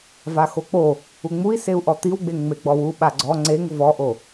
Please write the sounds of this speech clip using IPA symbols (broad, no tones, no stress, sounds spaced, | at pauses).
v a x o k͡p o | u ŋ͡m u i̯ s e u̯ ʔ ɔ t̪ i w ɡ͡b e ŋ ŋ͡m e ɡ͡b ɔ w u ɓ a ɡ͡ǀ ɔ ŋ͡ǀ e ŋ v ɔ ʔ o